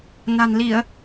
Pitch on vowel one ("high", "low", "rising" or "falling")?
low